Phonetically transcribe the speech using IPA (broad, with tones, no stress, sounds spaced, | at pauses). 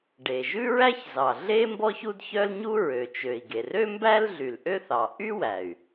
ɖ e˩ ʒ ʉ˥ ɹ æ˥ ç z ɑ˩ ɮ e˥ m b ɔ˥ ç u˥ d ç œ˥ l ɲ u˥ ɹ ø˩ t͡ʃ ø˩ i̯ ɡ e˩ r ø˥ m b æ˥ l ɮ y˩ l ʔ ø˥ θ ɑ˩ ʔ y˥ w æ˩ y̯